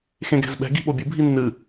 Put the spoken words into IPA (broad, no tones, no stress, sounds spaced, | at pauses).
x ẽ ɡ ɛ̤ z ɓ ɛ̤ ɡ i̤ ɓ o bʲ ɨ bʱ i nː ɨ